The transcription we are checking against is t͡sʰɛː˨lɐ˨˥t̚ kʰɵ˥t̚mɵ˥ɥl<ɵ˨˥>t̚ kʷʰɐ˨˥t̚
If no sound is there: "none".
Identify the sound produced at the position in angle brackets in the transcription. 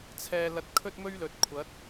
ɵ˨˥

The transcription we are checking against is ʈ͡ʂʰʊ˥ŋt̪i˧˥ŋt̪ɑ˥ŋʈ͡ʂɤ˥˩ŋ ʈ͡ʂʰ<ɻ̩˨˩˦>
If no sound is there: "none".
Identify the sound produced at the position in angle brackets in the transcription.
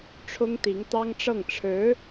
ɻ̩˧˥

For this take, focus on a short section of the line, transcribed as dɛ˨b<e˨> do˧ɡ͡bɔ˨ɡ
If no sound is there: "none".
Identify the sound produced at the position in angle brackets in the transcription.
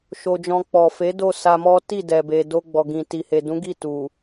e˨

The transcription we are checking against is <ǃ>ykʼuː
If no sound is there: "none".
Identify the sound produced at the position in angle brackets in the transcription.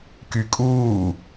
k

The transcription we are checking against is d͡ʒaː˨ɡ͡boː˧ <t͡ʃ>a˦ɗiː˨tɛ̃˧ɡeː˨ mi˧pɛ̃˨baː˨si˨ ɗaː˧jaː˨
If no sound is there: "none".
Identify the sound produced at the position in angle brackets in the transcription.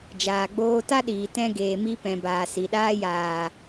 t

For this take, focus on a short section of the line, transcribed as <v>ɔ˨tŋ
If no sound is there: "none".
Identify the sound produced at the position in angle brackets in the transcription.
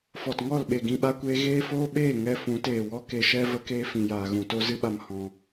f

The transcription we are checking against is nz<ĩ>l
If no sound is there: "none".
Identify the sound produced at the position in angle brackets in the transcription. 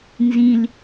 ĩ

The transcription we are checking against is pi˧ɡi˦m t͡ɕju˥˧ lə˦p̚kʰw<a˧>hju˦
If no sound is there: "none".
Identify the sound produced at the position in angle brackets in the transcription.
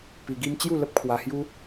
a˧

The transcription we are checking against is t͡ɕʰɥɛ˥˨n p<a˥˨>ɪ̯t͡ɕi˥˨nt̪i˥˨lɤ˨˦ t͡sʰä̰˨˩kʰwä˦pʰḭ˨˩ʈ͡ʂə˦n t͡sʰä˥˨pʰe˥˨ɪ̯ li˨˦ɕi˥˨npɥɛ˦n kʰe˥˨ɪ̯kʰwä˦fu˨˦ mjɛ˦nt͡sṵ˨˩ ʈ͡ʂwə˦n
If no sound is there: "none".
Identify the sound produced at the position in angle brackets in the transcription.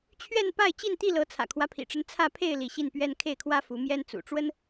a˥˨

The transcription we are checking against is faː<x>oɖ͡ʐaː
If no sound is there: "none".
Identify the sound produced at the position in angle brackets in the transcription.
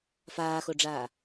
x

